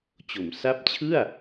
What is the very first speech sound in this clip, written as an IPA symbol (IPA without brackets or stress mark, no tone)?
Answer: t͡ɕ